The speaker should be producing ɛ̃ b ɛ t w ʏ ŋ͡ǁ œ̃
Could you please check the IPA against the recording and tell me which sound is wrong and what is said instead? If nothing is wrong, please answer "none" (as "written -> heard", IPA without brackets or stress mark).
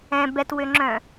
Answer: none